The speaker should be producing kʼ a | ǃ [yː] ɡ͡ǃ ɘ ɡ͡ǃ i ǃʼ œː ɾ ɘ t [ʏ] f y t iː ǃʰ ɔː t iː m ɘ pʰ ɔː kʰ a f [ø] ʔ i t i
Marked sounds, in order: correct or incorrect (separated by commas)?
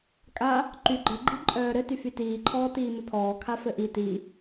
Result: incorrect, incorrect, incorrect